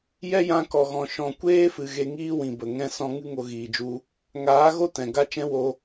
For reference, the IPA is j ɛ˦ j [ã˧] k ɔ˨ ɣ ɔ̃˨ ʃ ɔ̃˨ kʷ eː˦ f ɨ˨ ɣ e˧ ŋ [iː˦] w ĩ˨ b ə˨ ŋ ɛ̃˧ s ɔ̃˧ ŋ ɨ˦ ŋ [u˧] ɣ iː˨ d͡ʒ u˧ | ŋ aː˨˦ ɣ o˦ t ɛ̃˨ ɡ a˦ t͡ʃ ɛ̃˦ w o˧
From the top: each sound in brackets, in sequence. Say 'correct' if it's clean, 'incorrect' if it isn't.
correct, correct, incorrect

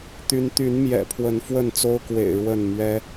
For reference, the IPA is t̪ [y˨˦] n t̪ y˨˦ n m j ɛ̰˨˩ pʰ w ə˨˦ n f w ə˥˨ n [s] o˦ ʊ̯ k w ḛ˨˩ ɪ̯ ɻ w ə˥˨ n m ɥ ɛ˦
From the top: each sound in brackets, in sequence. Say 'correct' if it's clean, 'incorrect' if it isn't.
correct, incorrect

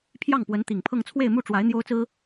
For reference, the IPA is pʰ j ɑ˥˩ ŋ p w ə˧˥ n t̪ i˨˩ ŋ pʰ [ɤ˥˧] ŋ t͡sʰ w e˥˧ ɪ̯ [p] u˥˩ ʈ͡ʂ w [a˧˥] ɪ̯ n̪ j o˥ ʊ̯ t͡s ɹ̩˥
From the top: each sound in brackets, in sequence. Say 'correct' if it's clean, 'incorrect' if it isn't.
correct, incorrect, correct

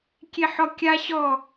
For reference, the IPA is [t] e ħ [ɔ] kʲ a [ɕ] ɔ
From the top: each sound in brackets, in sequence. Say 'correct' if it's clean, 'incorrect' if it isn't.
incorrect, correct, correct

